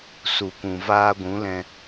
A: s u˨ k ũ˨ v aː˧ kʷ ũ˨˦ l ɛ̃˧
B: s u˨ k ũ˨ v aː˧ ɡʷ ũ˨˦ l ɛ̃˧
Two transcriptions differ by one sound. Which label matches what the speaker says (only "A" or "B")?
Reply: B